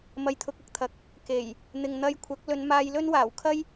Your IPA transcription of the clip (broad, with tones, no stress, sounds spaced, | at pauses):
m ɐ˧ j t̪ʰ ʊ˧ k̚ ɐ˥ k̚ t̪ʰ ɐ˨˥ k̚ | k e˨˩ j | n̪ ɪ˨ ŋ n̪ ɐ˧ j kʷʰ ɐ˨˥ k̚ l ɵ˨˧ n m aː˧ j l ɵ˥ n w aː˨˩ w kʰ ɐ˥ j